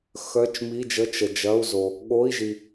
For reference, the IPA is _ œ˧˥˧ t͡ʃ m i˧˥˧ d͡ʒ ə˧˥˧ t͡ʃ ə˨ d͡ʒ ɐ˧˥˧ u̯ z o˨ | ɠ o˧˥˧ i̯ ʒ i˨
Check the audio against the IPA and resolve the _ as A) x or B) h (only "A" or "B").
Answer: A